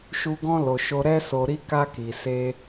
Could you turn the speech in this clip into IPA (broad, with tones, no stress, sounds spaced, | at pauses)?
ʃ u˧ ɡ ɔ̃˦ l o˧ ʃ o˦ ɾ ɛ˦ s o˧ ɾ i˦ k a˧ k i˨ s e˧